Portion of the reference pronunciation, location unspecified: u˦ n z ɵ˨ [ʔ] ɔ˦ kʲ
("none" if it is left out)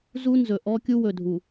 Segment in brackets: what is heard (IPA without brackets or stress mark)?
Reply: ʔ